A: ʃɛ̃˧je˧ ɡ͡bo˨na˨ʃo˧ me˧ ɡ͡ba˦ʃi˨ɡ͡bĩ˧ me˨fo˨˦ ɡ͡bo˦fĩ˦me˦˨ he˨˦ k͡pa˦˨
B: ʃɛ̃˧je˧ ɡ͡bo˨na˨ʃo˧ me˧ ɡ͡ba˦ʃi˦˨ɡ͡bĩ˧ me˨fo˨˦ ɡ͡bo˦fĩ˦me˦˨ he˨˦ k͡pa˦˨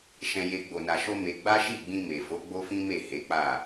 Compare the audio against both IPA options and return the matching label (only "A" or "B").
B